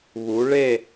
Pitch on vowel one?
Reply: rising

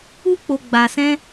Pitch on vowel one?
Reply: high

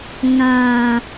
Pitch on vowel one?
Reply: low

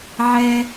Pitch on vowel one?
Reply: high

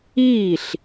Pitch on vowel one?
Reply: falling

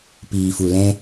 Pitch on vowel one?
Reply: low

